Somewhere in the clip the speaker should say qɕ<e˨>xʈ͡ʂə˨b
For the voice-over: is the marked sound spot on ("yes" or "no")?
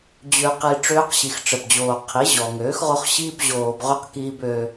no